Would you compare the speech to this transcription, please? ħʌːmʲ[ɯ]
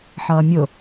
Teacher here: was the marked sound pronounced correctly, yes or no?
no